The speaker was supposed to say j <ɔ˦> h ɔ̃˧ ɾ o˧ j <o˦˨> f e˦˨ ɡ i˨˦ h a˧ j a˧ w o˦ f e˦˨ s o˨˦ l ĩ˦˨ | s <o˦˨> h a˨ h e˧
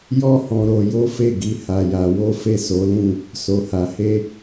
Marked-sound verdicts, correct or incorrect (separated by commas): correct, incorrect, incorrect